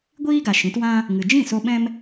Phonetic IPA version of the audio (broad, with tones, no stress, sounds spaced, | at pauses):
ɡʷ iː˦ ɡ a˨ ʃ ĩ˨˦ t w ã˦ | ŋ ɨ˨ d͡ʒ ĩ˦˨ s o˧ ɓ ɛ̃˦ m